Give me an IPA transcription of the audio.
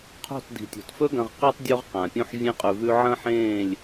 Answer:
qʰ o̤˦˨ t d i̤˨ tʲ o̤˨ t f ɵ˦ ɡ ɐ̃˧ ʁ q i˧ tˤ dʲ o˧ ʁ q ã˨ pʲ ũ˧ ħ vʲ ẽ˧ qʼ ʉ˨ v ʉ˧ ʕ ɐ̃˦ ħ ẽː˦˨ lʲ

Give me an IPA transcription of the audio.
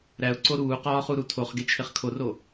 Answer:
ɾ æ ʊ̯ ǀ o ɾ uː q ɒː χ u ɾ u tʰ o χ ɡ e t͡ʃʰ e χ kʰ o r o

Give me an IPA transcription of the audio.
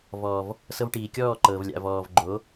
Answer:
v ɔː˨ v | s ɤ˧ v ʈ iː˨ kʲ ɔː˦˨ ǃ ɤː˨ v lʲ a̰˨ v ɔː˨ v ɡ͡ǃ o˨˦

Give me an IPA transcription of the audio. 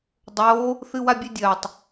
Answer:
dˤ oː | θ ɨ w a bʲ e dʲ ɐː tˤ

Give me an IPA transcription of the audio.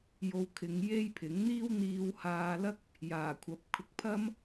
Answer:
j o˧ w kʰ ɪ˨˧ ŋ j e˥ j pʰ ɪ˨˥ ŋ n̪ iː˥ w n̪ iː˧ w h aː˧ l ɐ˥ k̚ | j aː˨˩ kʷʰ ɐ˨˥ p̚ kʰ ʊ˨ k̚ pʰ ɐ˥ m

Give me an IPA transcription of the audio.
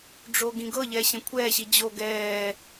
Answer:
ɖ͡ʐ o ɡ ĩ ɡ ɤ ʎ ɛː ɕ ẽ kʷʰ ɛː ɕ i d͡ʑ o ɡ ɛː

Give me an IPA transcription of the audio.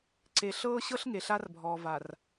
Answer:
ǀ e˨ ɬ ɤː˦ ɕ ɤ˦ ɬ ŋ e˨ ɬ a˦ r bʱ ɔː˨ v a˨ r

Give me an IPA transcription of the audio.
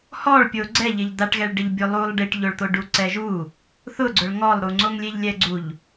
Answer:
h ɔ ɭ pʲ o ɡ͡ǀ ɛ ʎ ɪ ʎ d̪ a ʈ ɣ ɛ ɭ ɖ ɪ ʎ bʲ o lˠ u lˠ ɖ i ʈ ʎ o ɭ t̪ o ɖ u ǀ ɛ ʒ u | θ ʊ ɡ͡ǀ ʊ ɭ ŋ ɔ lˠ ɾ u ŋ͡ǀ o ŋ lʲ e ʎ lʲ ɛ ɡ͡ǀ u ʎ

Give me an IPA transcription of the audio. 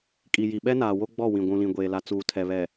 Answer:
kʼ i˨ j i˨ ɓ ɛ˦ n aː˨ w o˦ ɡ͡b ɔ˦˨ w ĩ˨ ɡʷ ũ˨ l ĩ˨ ɡʷ eː˨ l a˨ t͡s uː˨ tʰ ɛ˨ β ɛ˨

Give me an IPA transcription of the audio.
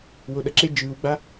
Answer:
w o ɗ ʌ ǁ e d͡ʒ ɯː w ɡ͡b a

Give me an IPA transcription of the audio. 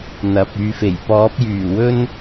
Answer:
n̪ ɐ˨ p̚ yː˧ f e˨˩ j p ɔː˨˥ p̚ j yː˨˩ w ɵ˥ n

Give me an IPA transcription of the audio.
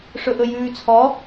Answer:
ʂ ɵ ʔ ɵ j ʉː t͡sʰ ɔ

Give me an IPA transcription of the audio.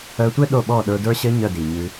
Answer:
œ˧ tʷ ɘ˦ ɗ o˦˨ ɓ ɔ˦˨ ɗ ə˞˧ d ə˞˧ ɕ ɘ˧ ɲ œ˦˨ d i˨ ɲ ʉ˧

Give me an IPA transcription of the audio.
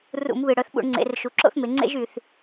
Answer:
r ṵ˧˩˧ m β ɨ˨˩ ɽ œ˩˧ θ ɓ ṵ˧˩˧ ɳ ŋ͡ǀ ḛ˩˧ r ʃ u˩˧ ǁ o̰˥ θ m e˩˧ ŋ͡ǀ ḛ˥ ʒ y˨˩ θ

